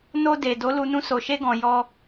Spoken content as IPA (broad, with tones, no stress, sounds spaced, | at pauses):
n o˧ d e˨ d o˨˦ l u˧ n ũ˧ s o˨ ʃ e˧ ɡ ɔ̃˨ j ɔ˧